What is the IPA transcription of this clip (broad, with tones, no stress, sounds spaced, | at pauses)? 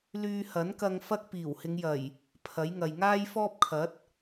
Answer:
l yː˧ h ɐ˨˥ n k ɐ˧ ŋ f ɐ˥ k̚ p iː˨˩ w h ɪ˨˧ ŋ j ɐ˨˩ j | pʰ ɐ˨˥ j ŋ ɐ˨ j ŋ aː˥ j f ɔː˥ p̚ kʰ ɐ˨˥ t̚